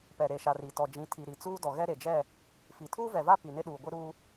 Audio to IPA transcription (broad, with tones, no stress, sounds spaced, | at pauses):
p ɛ˨ ɾ e˨ ʃ a˨ r i˨ t ɔ˨ d͡ʒ ĩ˨˦ tʰ i˨ ɾ i˨ t͡s uː˦ d ɔ˨ ɣ ɛ˦ ɾ e˨ d͡ʒ ɛ˦˨ | f i˨ tʰ uː˦ v ɛ˨ v a˦ p i˨ n ɪ˦ ɗ uː˨ ɡʷ ɪ˦ ɾ uː˦